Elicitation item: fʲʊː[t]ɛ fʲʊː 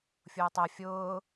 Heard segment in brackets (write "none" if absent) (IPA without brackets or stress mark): tˤ